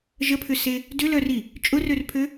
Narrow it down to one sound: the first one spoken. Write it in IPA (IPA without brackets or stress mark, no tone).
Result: ʒ